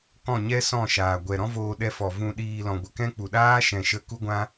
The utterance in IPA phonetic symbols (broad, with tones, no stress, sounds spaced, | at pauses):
k ɔ̃˦˨ ɲ ɛ˦ s ɔ̃˦˨ ʃ aː˨ ɡʷ ɛ˨ ɾ ɔ̃˦ v oː˧ ɗ ɛ˧ f ɔ˨ v ũ˧ ɗ iː˧ l ɔ̃˨ ɡʷ ə˧ k ɛ̃˦ k͡p u˨ ɗ aː˦ ʃ ɛ̃˨ ʃ ə˧ k u˦ ɡʷ ã˦